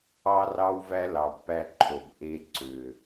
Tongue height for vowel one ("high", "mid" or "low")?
low